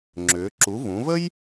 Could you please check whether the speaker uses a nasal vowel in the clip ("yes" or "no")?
yes